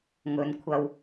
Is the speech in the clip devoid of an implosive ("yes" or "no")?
yes